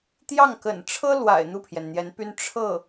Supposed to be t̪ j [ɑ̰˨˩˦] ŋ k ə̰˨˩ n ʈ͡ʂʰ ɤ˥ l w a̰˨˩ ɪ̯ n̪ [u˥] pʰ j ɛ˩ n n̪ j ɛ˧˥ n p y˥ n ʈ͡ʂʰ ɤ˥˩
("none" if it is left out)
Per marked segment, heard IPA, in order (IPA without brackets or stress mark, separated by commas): ɑ˥˩, u˥˩